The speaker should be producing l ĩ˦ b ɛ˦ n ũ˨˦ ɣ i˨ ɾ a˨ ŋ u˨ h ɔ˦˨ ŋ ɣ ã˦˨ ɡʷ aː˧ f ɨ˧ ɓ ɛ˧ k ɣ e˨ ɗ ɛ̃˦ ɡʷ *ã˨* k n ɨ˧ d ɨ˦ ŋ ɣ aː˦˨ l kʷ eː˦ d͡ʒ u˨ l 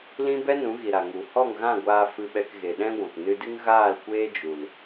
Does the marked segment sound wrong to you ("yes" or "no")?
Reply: no